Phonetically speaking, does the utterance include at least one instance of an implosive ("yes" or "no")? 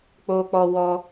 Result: no